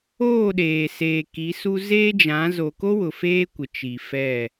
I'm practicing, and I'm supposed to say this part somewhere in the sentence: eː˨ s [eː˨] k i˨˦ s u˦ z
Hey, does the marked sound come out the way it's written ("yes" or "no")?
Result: yes